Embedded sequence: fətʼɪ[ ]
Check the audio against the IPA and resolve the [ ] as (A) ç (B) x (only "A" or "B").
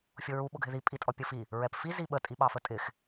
B